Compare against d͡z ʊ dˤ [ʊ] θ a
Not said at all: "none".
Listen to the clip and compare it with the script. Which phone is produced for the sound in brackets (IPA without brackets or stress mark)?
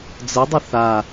ʊ